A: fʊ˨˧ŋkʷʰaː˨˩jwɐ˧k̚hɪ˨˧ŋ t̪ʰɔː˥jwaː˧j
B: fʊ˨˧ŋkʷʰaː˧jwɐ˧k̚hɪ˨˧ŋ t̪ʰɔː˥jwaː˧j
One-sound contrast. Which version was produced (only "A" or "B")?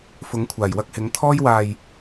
A